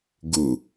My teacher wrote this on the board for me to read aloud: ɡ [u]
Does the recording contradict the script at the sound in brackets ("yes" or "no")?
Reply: no